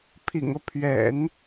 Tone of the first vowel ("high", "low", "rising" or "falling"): low